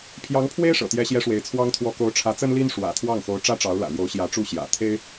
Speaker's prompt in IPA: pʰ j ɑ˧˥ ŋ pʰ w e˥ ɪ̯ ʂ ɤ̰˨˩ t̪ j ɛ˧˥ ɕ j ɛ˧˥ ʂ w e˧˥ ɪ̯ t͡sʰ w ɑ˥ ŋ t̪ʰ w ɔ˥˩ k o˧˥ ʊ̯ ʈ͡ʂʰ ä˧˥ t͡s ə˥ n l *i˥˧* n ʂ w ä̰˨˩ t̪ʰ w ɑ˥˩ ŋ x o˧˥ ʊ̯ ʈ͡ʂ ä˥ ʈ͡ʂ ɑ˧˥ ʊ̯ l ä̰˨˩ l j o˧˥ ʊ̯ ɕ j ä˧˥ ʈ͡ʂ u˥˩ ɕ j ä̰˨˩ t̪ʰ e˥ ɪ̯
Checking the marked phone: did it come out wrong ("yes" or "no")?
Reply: yes